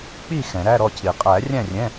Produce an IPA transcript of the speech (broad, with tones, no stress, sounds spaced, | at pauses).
k͡p i˥˨ x ɛ̃˨˩˦ ɾ æ˧˥˧ ɾ ɔ˥˨ cʰ i˨˩˦ qʼ æ˨˩˦ rʲ æ̃˥˨ rʲ ɛ̃˧˥˧